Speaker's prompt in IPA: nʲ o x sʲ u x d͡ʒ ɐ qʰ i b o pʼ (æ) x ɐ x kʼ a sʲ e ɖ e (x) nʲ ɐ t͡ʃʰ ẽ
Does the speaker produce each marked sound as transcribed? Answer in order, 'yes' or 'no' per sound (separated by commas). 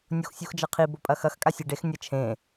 no, yes